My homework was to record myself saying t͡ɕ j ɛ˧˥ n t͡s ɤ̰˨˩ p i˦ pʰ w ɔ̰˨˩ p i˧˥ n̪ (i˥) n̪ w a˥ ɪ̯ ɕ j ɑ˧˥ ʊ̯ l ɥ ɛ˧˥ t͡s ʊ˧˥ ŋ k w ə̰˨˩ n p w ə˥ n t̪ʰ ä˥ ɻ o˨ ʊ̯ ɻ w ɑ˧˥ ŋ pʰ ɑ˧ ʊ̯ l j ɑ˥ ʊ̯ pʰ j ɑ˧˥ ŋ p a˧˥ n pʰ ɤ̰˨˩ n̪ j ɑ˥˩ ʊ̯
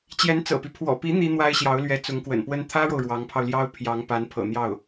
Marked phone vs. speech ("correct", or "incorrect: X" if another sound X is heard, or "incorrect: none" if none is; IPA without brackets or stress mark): correct